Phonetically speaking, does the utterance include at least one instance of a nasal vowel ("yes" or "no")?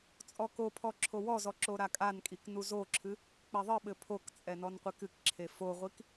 no